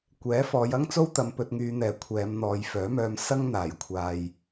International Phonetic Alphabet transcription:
kʷ ɛː˨˥ f ɔː˨˧ j ɐ˥ ŋ t͡s o˥ w t̪ ɐ˧ m p ɵ˧ t̚ ŋ yː˧ n̪ ɛː˨˧ kʷʰ ɛː˨˧ m n̪ ɔː˨ j f œː˨˥ m œː˧ m s ɐ˥ ŋ n̪ aː˨˩ j kʷʰ aː˨ j

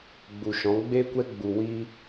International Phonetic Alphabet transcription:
ɡ͡b u˨ ʃ ɔ̃˨˦ ɡ͡b e˦ kʷ ɛ˦ ɡ͡b u˨ w i˧

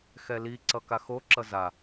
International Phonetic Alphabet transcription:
x ɛ l i ǀ ʌ k a x o ǁ ʌ z a

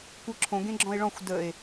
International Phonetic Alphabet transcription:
kʷ ə˞ ǁʰ õ ɡ ẽ ɡ͡ǁ ɔ̃ e̯ ɭ ɔ̃ xʷ d ə e̯

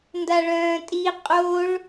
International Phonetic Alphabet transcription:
n d a ɭ œ̃ː tʼ i qʼ o ɭ

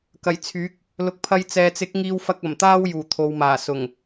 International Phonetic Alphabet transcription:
k ɐ˨˩ j t͡sʰ yː˨˥ k̚ | l ʊ˨ k̚ pʰ ɐ˧ j t͡s ɛː˨ t͡s ɪ˨˥ k̚ ŋ iː˧ w f ɐ˧ k̚ ɐ˨˩ m t̪ aː˥ w j uː˨˩ t̪ʰ o˨ w m aː˨˩ s ʊ˨˩ ŋ

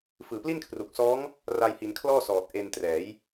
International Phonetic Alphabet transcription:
f ɯː˨˩ p l i˥˩ n kʰ r u˨˩ k̚ s ɔː˦˥ ŋ | r a˧ j h i˩˦ n kʰ l ɔː˥˩ s ɔː˨˩ t̚ ʔ e˧ n t r ɛː˩˦ j

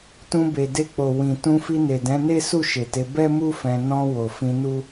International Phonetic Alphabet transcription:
t ũ˧ b e˨ d e˧ k͡p o˨ w ĩ˨ t ũ˧ f i˧ n e˨ d ɛ̃˨˦ n e˦ s u˦˨ ʃ e˨ t e˨˦ b ɛ˦ m u˦ f ɛ̃˧ n ɔ̃˧ w o˨ f ĩ˧ n u˦

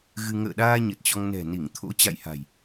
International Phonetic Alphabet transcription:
ɣ ɨ˧ ŋ ə̰ː˧˨ ɗ aː˧ ɲ ə˨˩ t̚ t͡ɕ ɔ˧ ŋ n ɛ̤˨˩ n i˧˩ ŋ t̪ʰ o̰˧˥ t͡ɕ a̰˧˨ j h a̤˨˩ j

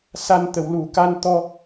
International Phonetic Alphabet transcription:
s a˨˩ n t̪ ə˨˩˨ w l u˨˩˦ k a˧ n t̪ ɔ˧

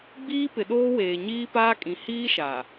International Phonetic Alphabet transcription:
ɡ͡b iː˦ p ɪ˨ ɗ oː˦ w eː˨ ɲ iː˦ p aː˦ kʼ ĩ˨ h iː˦ ʃ a˨

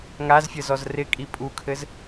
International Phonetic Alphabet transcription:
ŋ a z fʲ ə z ɔ z r ɪ kʼ i pʼ u kʰ ɘ z

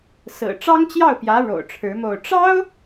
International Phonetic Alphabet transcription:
s ɹ̩˨˩ ʈ͡ʂ ɑ˥ ŋ t͡ɕ j ɑ˥˩ ʊ̯ p j ä˧˥ ɻ o̰˨˩ ʊ̯ ʈ͡ʂʰ ɻ̩˧˥ m o˥˩ ʊ̯ ʈ͡ʂ ɑ˥ ʊ̯

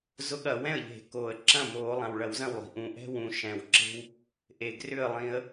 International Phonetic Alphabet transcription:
z ʊ˦ ɠ ɐ˧˩˧ w ɛ̃˥˩ ə̯ ʎ e̤˧˩˧ k oː˩ ə̯ ǁ ɐ̃˥˩ m oː˧˩˧ lˠ ã˩ w ɭ ɐ˧˩˧ w z ɐ̃˥˩ w lˠ i̤˩ ʔ ũ˩ ʔ ɛ̤˦ w ũ˩ ʃ ɛ̃˩ w ǁ e̤˦ w | ʔ e˩ ɡ r ʏ˥˩ ə̯ lˠ ĩ˧˩˧ ə̯

